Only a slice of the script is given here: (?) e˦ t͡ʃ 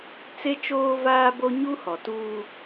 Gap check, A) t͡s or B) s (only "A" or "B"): A